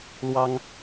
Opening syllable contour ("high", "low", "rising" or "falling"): high